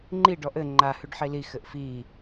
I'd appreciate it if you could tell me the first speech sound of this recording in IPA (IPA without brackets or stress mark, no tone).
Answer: ŋ͡ǃ